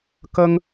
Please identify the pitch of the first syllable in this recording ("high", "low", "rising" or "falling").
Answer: high